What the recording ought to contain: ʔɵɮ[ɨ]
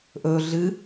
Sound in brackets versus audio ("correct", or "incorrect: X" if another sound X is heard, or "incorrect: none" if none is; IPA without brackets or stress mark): correct